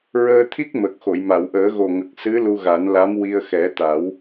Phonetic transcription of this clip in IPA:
ɹ əː˧ t̪ʰ i˦˥ k̚ m ə˨˩ k̚ x o˨˩˨ j m a˨˩˨ w ʔ əː˨˩˦ ɣ o˨˩ ŋ ə˨˩ k̚ s ɨ˧˥ l u˧ ɣ a˨˩˦ n l a˧˥ m w i˧ ə̯ x ɛ˨˩˦ t̪ a˨˩˦ w

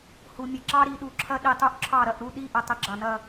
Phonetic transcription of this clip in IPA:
h u˨ mʲ ə˨ ǁ ɑ˦ ɾ i˨ ɗ u˨ ǁʰ ɐ˦ ɗ i˨ tˤ u˦ ʔ ǁʰ ɑ˦˨ ɾ ɐ˦˨ ʔ ɾ u˦˨ ɗ i˦˨ ʔ ə˨ tˤ ə˨˦ ɡ͡ǁ ɑ˨ n ɐ˦

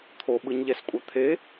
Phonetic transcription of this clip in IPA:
t̪ʰ o ɓ ɯ ɲ ʎ ɛ s kʷʼ a t̪ʰ e

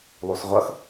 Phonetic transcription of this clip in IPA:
lˠ u s ʁʷ ʌ x

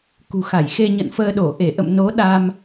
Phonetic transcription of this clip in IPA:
k ṳ˨˩ x a˧˩ j x e˧ ɲ ə̰˧˨ n f əː˧ ɗ o˧˩ ʔ e˧˩ ʔ ə̰˧˨ m n o˨˦ ɗ a˧ m

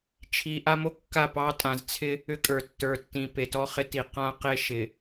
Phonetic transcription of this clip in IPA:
t͡ʃʰ i˨ ʔ a˦ m o˦ kː a˦˨ p ɑ˦ tʼ ã˨ z t͡sʰ ɪ˦ | ʏ˦ kʼ ə˞˨ tː ə˞˨ tː ĩ˨ p e˨ t ɔ˦ χ ɪ˦ t i˨ q ã˦ q e˦ ʃ ɪ˨

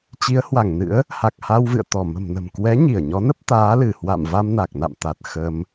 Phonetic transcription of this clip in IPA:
t͡ɕ i˨˦ ə̯ h w a˧˩ ŋ n ɨ̰˧˥ ə̯ | h a˨˩ k̚ h a˧ w v ɨ̰˧˨ ə̯ t̪ ɔ˧˩ m ə̤˨˩ m n ə̤˨˩ m k w ɛ˨˦ ɲ i˧˩ ə̯ ɲ ɔ˨˦ n ə˦˥ p̚ t̪ aː˨˦ l ɨ˧˩ h w a̰˧˨ m v a˧ m n a˨˩ k̚ n a̰˧˨ m t̪ a˨˩ t̚ x ə˧ m

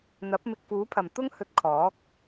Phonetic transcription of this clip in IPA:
n̪ ɐ˨˥ p̚ m ɪ˧ k̚ f uː˨˥ pʰ ɐ˨ m t̪ ʊ˥ ŋ h ɵ˧ t̚ kʰ ɔː˨˥ k̚

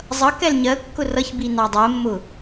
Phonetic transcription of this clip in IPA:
zˤ ʌ k ɛ l ɲ ɜ kː ʊ r ʌ ç b i n ɑ dˤ ɜ mː ʊ

